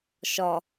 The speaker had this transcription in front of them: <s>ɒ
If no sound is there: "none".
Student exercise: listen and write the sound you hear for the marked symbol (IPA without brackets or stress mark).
ʃ